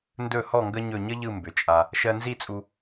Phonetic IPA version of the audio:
n d ɵ˧˩ h ɔ˧˩ ŋ ɡ ə˧ ɲ ɵ˧˩ ɲ ə˥ ʎ ɯ˧˩ m b ʏ˩˧ t͡ʃʼ a˧ | ʃ ɜ˧ n z i˥˧ t͡sʼ u˧

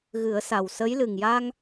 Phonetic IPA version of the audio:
ɣ ɨ˨˩˦ ə̯ s a˨˩ w s ə˧˥ j l ɨ˨˩ ŋ j a˧ ŋ

